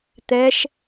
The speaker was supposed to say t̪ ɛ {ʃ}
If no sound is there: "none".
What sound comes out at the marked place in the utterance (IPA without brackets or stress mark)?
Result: ʃ